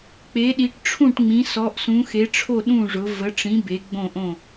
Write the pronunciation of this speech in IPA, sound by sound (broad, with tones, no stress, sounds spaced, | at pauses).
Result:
k͡p e˨˦ ɗ i˨˦ ʈ ʈ͡ʂʰ ũ˥˨ ʈ ŋ͡m ĩ˨˦ s ɔ˨˦ ʔ s ũ˨˦ x e˨˦ ʈ͡ʂʰ o˥˨ ɗ ũ˥˨ ʐ ʊ˨˦ v ə˨˦ ʈ͡ʂ ĩ˨˦ b e˨˦ ɡ͡b õ˥˨ ʔ õ˥˨